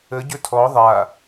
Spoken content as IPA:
ə ɟ ɵ tʰ ɔ ðˤ a

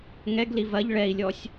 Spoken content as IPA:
ŋ ɛ ɡ l i v ɐ ʎ ɭ ɛ i̯ lʲ ɔ sʲ

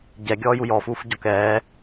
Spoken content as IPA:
ɟ ɛ ɡʲ ɔː j u j ɔ f uː f ɟ ɔ k ɛː

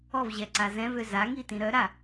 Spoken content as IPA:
ɔ v ʑ ɛ ǀ a z ɛ̃ v ø z a ŋ i t ĩ ɾ œ ɾ a

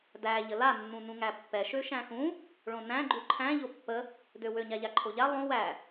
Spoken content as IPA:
d æ ʎ ə l a nː ũ n ũ ŋ æ pː ɛ ʃ ø ʃ æ̃ x ũ | ɭ õ n æ̃ ɡ͡ǃ u ǃʰ æ̃ ʎ o pː ə | d ø w ø ɲ a ʎ a ǃʰ o ʎ a lˠ õ w æ

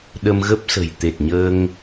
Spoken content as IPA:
ɗ ə˧ m ɣ ə˦˥ p̚ s ə̤˨˩ j t̪ e˨˩ t̚ ɲ əː˧ ŋ

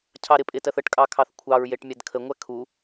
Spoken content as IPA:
cʰ ɑ ɾ ɪ pʼ ɪ t ɜ θ ə ʈ kʼ ɑ kʰ ɑ θ kʷʰ ɑ ɹ j e ʈ mʲ æ d kʰ ə ŋʷ æ kʰ u

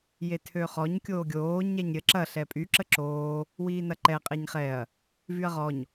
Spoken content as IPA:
j e tʰ ø χ ɔ ɲ kʲ oː ɡʲ oː ɲ ɛ ɲ ɾʲ ə ǁ ɐ ɬ ɛ pʼ y ǁ ə ǁ oː | w iː n ɐ ǃ ɛ qʼ e ɲ χ ɛ ɐ̯ | v y ɐ̯ ʁ ɔ ɲ

